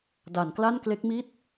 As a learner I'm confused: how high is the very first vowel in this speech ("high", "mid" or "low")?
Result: low